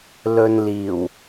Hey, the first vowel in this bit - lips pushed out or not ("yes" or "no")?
yes